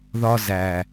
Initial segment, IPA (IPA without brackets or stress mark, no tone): ð